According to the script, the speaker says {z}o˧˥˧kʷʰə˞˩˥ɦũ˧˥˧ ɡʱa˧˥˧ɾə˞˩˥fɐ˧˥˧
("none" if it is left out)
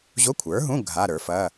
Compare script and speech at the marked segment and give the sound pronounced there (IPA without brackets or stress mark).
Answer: ʑ